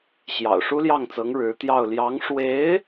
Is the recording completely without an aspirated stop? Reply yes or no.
yes